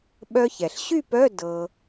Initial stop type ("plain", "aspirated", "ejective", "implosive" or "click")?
implosive